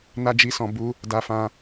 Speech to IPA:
n a˦ d͡ʒ i˦˨ s ɔ̃˧ b u˦ | d a˧ f ã˧

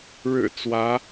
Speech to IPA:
ɻ ɻ̩˨˩ t͡s w ä˧˥

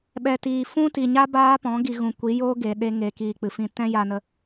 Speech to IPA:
ɓ ɛ˨ t iː˨ f ũ˦ t i˨ ɲ a˦ b aː˦ p ɔ̃˨˦ ɡ i˧ ɣ ũ˨ kʷ i˨˦ j o˦ ɡ e˨ ɗ e˧ ŋ e˨˦ k iː˧ k͡p ɨ˨ f ĩ˦ t ɛ̃˦ j a˧ n ə˧

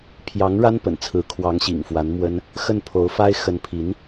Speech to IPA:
pʰ j ɑ˧˥ ŋ ɻ a˥ n p ə̰˨˩ n t͡sʰ ɹ̩˧˥ kʰ w ɑ˧˥ ŋ ɕ ḭ˨˩ ŋ f w a˧˥ n m w ə˥ n | x ə˥˩ n pʰ o˧˥ ʊ̯ f a˥ ɪ̯ x ə˧˥ n pʰ i˧˥ n

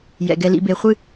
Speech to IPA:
j ɛ̰˨ ɡ ɛ˨ l ḭ˨ b e˨ χʷ ɨ˦

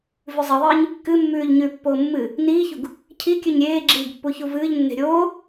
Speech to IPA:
v ʉ zˤ i ðˤ ɨː ɲ | k ɨ mː ʉː ʎ ɲ ʉ pː oː mː ɨ | n iː ç u ɡ | cʰ i kʲ ʉ ɲ ɾʲ eː ɡ͡ǁ iː ɡ pː u ç u v ɨː ʎ nː e̤ ɾʲ oː

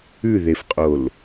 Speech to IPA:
ʉ ð e f qʼ o l

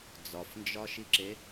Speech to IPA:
d͡z ɒ f n d͡ʒ ɒ ʃ i ǁ e

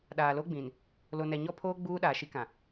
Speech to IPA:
ɗ aː˨ l o˦ ɡ͡b ĩ˨ n | l o˨ n ɛ˨ ɲ ɔ˦ pʰ oː˦ ɡ͡b uː˦ ɗ aː˨ ʃ i˦ k ã˨

